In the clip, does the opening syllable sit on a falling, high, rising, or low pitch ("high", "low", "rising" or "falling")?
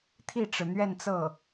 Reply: falling